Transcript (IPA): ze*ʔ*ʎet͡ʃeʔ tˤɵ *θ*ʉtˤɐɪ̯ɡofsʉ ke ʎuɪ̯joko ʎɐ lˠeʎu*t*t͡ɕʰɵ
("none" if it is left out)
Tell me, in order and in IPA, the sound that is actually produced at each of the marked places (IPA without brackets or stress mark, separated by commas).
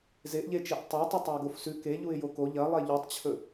ʔ, tˤ, tˤ